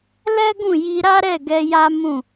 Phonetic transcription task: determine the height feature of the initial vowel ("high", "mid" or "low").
mid